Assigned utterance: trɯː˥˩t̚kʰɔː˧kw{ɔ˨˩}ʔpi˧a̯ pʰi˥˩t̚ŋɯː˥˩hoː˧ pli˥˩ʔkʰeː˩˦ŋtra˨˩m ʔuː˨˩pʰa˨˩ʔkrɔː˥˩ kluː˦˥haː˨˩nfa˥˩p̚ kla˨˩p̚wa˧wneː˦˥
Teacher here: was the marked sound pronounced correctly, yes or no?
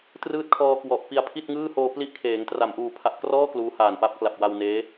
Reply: yes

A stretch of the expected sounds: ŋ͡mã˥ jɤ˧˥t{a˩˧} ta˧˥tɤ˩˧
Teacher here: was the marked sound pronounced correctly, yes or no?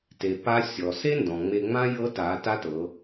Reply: yes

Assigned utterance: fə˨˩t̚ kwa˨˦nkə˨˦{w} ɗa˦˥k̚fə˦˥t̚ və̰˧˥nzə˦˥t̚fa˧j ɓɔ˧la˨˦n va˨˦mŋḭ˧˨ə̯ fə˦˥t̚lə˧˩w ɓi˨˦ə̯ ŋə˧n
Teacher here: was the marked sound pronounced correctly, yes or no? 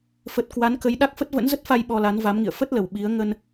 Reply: no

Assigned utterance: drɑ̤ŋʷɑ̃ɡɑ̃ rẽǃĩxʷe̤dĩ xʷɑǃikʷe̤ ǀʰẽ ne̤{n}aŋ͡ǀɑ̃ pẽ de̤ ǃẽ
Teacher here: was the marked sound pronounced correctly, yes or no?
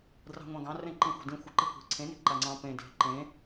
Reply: no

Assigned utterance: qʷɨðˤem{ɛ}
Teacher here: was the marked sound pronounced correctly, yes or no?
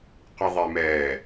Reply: no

